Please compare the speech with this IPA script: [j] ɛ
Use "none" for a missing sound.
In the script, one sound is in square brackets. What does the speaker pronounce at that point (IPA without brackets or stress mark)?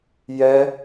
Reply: j